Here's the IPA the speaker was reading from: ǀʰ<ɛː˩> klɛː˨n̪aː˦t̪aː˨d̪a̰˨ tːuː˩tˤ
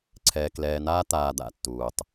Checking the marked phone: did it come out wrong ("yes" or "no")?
yes